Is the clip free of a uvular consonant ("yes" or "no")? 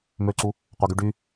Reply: no